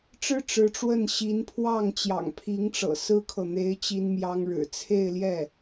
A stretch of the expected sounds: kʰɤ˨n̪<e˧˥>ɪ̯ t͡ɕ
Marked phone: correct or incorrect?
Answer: correct